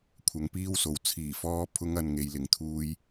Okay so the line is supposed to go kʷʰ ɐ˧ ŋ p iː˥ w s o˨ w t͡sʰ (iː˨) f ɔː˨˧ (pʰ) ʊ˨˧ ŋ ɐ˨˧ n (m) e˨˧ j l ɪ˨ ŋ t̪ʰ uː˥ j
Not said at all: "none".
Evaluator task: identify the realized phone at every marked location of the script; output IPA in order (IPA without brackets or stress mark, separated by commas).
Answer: iː˨˩, pʰ, ŋ